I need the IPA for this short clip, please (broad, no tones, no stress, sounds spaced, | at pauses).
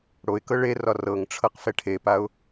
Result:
ɽ o ɪ̯ k ɤ ɭ e r ɒ r ɤ ŋ ʈ͡ʂʰ ɤ q f ɛ ʈʰ e p a ʊ̯